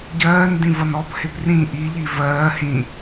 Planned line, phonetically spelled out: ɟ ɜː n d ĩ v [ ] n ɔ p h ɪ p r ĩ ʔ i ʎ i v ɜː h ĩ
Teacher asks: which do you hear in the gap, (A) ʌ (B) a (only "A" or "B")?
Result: A